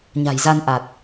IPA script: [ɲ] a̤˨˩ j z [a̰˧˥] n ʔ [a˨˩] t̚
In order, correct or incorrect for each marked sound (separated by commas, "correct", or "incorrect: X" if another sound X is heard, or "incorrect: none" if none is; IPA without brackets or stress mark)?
correct, incorrect: a˧, correct